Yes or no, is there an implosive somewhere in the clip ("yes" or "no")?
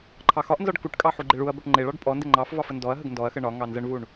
no